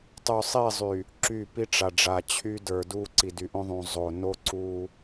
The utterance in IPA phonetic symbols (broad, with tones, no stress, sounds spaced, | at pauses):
tˤ y˨ sˤ i˦˨ zˤ y˨ | ǁ y˦˨ p i˦ ʈ͡ʂ a˨ ɖ͡ʐ a˨ t͡ɕʰ y˦ d ə˞˨ d u˦ ǀ i˨ d y˨ ʔ õ˦ ðˤ ũ˨ zˤ o˨ n o˦ ǀ u˦